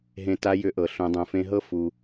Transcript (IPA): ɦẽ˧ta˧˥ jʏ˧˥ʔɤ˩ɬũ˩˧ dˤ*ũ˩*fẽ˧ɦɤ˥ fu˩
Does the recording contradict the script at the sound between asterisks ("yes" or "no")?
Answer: no